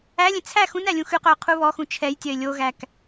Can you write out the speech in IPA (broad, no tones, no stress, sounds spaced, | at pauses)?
æ lʲ ẽ t͡sʰ æ x ũ n æ lʲ ũ x ʉ q œ ʊ̯ qʰ u β ɔ x ũ t͡ʃʰ ɛ j tʲ œ ɪ̯ lʲ o ɣ æ k